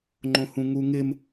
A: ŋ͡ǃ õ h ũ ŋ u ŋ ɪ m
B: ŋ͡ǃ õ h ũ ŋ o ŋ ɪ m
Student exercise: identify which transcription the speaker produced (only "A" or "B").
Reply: A